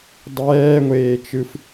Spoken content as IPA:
dˤ ɛː ŋʷ eː t͡ʃ ɯ f

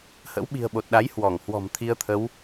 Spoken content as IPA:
h ə̰˧˥ w ɓ i̤˨˩ ə̯ ɓ o˨˩ t̚ ɗ a˨˦ j h w ɔ˧˩ ŋ h w ɔ̤˨˩ m t̪ʰ i˧ ə̯ t̪ʰ ə˨˦ w

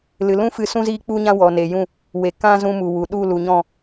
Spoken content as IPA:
l ɨ˨ l ũ˦ f ɨ˧ s ũ˦ z iː˦ k͡p u˦ ɲ ã˦ w ɔ˨ n e˨ j ũ˦˨ | w e˨ k ã˦ z ũ˧ m u˨ w u˨ ɗ u˦˨ l u˨ ɲ ɔ̃˦˨

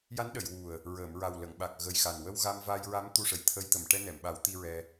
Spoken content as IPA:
j a˧˥ n ɗ ə˨˩˨ j w u˨˩ ə̯ | ɹ əː˨˩˨ m ɹ a˨˩ w l ə˨˩˨ ŋ ɓ a˨˩ k̚ ɣ ə˨˩ j x a˨˩ n w ə˧ w ɣ a˧ m v a˧ j ɹ a˧˥ m t̪ u˧ ʂ ə˨˩ j t̪ʰ ə˧˥ j t̪ ə˨˩˨ m ʈ ɛ˧ n ɛ˨˩˨ m ɓ a˨˩˦ w t̪ i˧ ɹ ɛ˧

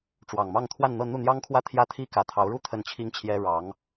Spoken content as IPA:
ʈ͡ʂ w ɑ˨˩ ŋ m ɑ˥˧ ŋ t̪ʰ w a˥˧ n n̪ ɤ˥˧ n̪ u˥˩ n̪ j ɑ˥ ŋ kʰ w ä˥˩ t̪ʰ j ä˥ t̪ʰ i˥ k ä˧˥ t̪ʰ ɑ˧˥ ʊ̯ ɻ u˥ t̪ʰ ə˥˩ n t͡ɕʰ i˥ ŋ t͡ɕʰ j ɛ˥ ɻ ɑ˧˥ ŋ

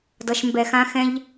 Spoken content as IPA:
d ʌ˧ ʃ m b ɛ˧ x ã˥ x ɛ̃˥ ʎ

